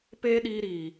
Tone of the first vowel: high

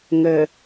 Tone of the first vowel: low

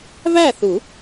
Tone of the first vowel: falling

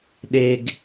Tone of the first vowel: high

